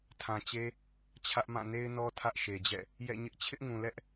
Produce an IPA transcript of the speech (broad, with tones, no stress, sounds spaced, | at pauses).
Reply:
tʰ ã˨ t͡ɕ e˦ | t͡ɕʰ ä˦ ʔ m ã˦˨ n e˦ ɪ̯ n ɔ˦ tʰ ä˦ ʔ ʃ e˨ d͡ʑ ɛ̰˦˨ | j ɛ̰˦˨ ɲ ɪ˦ ʔ t͡ɕʰ ɪ˦ ʔ ŋ ũ˨ l ɛ˦ ʔ